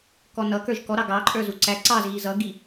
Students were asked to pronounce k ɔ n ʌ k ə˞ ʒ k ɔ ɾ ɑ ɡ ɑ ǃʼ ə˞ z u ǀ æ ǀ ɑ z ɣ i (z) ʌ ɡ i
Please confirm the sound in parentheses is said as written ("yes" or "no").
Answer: yes